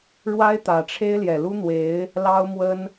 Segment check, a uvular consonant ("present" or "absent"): absent